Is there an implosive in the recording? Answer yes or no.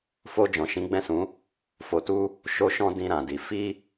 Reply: no